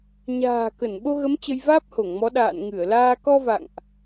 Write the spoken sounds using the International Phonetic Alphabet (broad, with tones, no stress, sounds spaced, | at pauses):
ɲ a̤ː˨˩ k ə˧˩ n ɓ o˧ ɣ ə˨˦ m t͡ɕ ə˧ j v aː˦˥ p̚ h o˧˩ ŋ m ɔ˨˦ ɗ a̰ː˧˨ n ŋ ɨ˧˩ ə̯ l aː˧ k ɔ˧ v a̰˧˨ ŋ ʔ